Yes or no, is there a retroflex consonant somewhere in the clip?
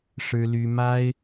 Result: yes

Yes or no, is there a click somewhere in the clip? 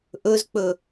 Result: no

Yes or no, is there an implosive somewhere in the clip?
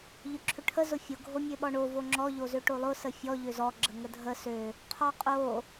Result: yes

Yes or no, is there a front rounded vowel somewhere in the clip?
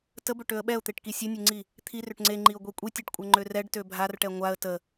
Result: yes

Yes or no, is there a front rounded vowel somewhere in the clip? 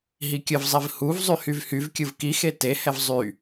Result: yes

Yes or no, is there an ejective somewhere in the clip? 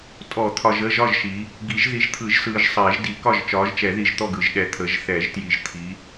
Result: yes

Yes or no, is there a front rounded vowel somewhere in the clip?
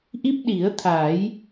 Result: no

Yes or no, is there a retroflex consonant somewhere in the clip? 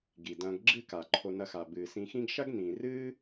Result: no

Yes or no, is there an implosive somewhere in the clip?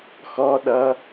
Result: yes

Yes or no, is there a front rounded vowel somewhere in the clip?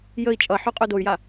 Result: yes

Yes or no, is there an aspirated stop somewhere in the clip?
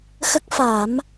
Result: no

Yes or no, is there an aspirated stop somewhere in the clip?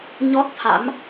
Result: yes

